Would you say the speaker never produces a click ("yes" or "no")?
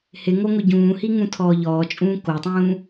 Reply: yes